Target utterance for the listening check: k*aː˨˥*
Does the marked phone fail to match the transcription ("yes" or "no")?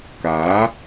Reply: no